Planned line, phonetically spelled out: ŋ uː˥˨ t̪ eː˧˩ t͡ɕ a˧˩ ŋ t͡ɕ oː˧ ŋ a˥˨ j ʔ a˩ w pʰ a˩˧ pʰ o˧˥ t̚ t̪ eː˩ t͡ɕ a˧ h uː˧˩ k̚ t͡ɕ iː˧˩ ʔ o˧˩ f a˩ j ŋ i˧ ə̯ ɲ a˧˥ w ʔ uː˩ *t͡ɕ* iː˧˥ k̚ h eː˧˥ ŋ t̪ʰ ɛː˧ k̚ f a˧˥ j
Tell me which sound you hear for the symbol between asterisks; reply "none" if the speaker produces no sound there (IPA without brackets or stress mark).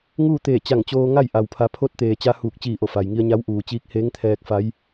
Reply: t͡ɕ